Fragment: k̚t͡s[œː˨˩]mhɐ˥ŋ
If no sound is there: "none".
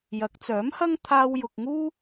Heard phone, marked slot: œː˨˥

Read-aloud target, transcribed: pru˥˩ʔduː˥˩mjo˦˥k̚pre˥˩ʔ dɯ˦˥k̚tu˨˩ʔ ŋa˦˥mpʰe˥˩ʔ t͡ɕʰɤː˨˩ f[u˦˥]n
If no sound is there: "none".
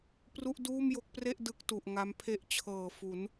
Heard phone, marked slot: u˩˦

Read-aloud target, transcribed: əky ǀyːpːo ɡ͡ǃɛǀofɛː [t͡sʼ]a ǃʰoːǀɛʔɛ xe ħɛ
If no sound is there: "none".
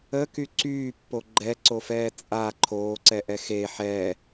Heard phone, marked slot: t͡sʼ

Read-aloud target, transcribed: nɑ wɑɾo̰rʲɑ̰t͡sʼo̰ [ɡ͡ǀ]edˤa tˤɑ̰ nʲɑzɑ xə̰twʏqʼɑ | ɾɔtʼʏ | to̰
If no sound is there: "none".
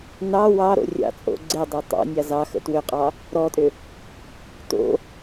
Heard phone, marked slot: ɡ͡ǀ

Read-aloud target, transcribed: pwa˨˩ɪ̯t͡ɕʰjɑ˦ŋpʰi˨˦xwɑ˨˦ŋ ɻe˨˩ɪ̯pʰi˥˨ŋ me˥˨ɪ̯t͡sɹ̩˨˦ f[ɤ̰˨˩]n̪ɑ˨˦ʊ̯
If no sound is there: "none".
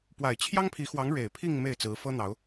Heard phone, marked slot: ɤ˦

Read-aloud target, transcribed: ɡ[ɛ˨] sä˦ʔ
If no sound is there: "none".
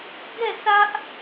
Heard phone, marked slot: ɛ˦˨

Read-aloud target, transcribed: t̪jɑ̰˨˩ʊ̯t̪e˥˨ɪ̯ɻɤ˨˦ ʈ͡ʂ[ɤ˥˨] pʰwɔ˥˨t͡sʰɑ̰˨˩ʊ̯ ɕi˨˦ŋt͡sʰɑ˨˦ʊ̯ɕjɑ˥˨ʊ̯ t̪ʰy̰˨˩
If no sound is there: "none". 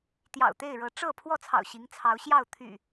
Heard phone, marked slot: ɤ˥˨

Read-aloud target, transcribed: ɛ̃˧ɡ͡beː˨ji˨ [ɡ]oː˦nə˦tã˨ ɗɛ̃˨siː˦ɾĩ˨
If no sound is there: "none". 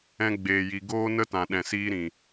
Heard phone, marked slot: ɡ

